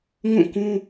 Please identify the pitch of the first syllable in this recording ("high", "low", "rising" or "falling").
falling